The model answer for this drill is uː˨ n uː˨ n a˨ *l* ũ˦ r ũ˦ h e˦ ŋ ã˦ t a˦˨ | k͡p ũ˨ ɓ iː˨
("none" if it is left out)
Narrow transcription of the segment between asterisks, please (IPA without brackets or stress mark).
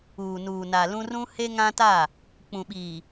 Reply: l